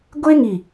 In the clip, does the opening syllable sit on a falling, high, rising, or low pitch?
high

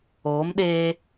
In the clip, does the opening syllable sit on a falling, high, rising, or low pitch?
rising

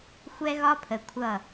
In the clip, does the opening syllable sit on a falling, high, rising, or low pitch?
high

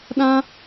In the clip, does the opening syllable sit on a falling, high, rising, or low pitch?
high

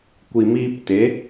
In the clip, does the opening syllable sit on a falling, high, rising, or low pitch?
low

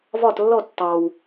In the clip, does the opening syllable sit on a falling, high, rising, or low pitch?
falling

